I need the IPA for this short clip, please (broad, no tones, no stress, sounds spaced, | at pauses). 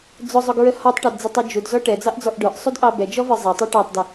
d͡z ʊ zˤ ʊ ɡ ɹ ə h ɔ tˤ ʈ ɑ d d͡z ɪ tˤ u d͡ʒ u d z ɔ ʈ ɛ d͡z ɑ ʔ d͡z ɔ ʔ ɖ ə˞ ʔ sˤ u d ʔ ɑ b ɛ d͡ʒ ɔ v ə˞ zˤ ɛ tˤ æ ʈ ɑ tˤ d ɪ